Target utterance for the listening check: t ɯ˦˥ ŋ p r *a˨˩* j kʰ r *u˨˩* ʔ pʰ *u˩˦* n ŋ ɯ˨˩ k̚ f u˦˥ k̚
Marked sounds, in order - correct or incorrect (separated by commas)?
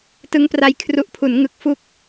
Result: incorrect, correct, correct